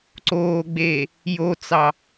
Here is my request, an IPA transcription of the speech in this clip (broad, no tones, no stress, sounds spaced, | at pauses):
ǀ oː ɡ͡b eː | j o t͡s ɑ